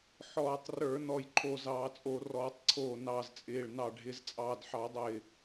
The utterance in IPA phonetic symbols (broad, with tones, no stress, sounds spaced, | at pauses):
ħ ɔː˧˩˧ tˤ r ə˞˧˩˧ n ɔ˧˩ j ǃʰ o˧˩ z ɑː˧˩˧ t͡sʼ o˧˩˧ r ɔː˧˩˧ tˤ ǀʰ oː˧˩ n ɑ˧˩ z t͡sʼ ɪː˧˩ ɭ n ɑ˧˩ ɖʱ ɪ˧˩˧ z t͡sʼ ɑː˧˩ d ħ ɑ˧˩˧ dˤ ɪː˧˩